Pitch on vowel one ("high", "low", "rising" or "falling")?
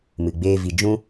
low